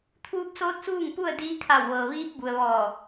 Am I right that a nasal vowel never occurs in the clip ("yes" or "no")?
yes